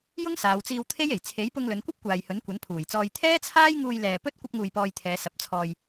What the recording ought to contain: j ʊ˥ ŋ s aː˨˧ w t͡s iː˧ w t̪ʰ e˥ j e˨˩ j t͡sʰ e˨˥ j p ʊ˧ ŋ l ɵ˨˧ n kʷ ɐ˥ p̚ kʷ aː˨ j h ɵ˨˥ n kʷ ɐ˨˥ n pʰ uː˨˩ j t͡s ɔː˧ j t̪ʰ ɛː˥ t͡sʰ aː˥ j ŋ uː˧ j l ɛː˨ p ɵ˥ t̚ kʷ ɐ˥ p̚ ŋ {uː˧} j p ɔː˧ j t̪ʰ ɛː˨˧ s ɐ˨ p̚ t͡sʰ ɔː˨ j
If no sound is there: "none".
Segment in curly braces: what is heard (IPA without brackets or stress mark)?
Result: uː˧